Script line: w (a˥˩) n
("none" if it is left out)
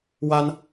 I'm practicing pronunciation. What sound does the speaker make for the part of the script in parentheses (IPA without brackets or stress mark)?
a˥